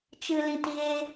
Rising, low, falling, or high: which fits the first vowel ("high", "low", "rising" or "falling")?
low